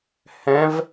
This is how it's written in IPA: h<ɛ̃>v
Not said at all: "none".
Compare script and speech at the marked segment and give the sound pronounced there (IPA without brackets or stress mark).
ɛ̃